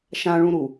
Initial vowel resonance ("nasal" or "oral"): nasal